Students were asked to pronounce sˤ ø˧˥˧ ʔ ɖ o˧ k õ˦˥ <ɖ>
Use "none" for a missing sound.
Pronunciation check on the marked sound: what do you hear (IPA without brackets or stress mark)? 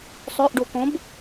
b